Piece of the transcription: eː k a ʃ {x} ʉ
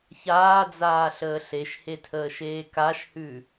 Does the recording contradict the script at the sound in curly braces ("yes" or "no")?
yes